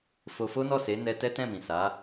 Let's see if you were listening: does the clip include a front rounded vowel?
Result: no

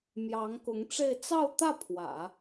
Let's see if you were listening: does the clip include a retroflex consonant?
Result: yes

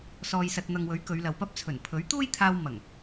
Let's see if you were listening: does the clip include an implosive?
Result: no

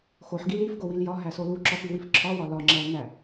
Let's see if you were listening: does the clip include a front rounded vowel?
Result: no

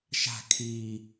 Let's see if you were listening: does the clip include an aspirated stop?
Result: yes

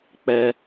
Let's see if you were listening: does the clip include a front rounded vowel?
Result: no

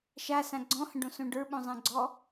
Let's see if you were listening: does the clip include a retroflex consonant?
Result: yes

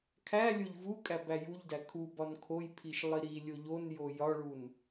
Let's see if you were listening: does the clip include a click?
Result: no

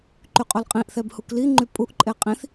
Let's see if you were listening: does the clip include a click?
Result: yes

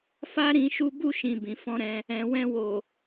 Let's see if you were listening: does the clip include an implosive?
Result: no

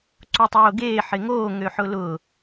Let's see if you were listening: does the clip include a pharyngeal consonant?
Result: yes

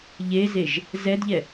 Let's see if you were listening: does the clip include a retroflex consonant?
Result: no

